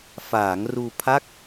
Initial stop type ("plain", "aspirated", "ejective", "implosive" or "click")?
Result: aspirated